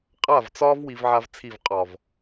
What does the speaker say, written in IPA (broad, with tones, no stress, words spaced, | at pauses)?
qʼa˦˨vt͡sɒ˦v wi˦vʕa˦vt͡sʰi˦˨v qʼɒ˨v